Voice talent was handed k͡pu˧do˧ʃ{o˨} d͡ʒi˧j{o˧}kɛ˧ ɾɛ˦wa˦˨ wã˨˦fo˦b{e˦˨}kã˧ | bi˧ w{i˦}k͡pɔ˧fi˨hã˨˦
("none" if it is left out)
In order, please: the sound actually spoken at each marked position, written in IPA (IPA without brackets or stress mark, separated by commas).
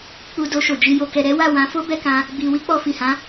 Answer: o˨, o˧, ɛ˦˨, i˦